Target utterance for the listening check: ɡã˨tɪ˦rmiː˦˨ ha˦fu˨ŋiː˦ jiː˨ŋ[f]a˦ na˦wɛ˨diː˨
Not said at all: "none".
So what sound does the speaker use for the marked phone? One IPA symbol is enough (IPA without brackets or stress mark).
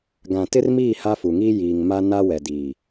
m